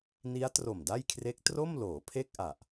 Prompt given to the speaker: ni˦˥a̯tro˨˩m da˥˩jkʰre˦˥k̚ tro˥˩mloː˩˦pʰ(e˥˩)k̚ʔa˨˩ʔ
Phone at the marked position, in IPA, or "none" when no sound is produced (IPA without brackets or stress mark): e˥˩